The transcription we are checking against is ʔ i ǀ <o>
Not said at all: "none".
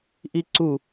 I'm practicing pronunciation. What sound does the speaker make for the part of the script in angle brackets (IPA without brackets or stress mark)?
u